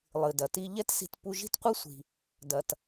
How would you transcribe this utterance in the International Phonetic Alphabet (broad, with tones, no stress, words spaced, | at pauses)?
lˠɨ˩dɐ˩ti˧ ʎɛ˥tsi̤˧t pu˧ʒi̤˥tqʷɨ˥sʷi̤˩ | dɐ˩t